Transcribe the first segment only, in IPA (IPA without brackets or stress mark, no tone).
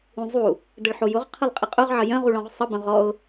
ũ